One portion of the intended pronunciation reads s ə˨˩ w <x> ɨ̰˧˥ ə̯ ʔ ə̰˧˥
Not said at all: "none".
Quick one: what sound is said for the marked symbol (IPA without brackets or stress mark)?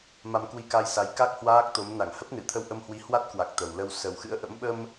x